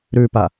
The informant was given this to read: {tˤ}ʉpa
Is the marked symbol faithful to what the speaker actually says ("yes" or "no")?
no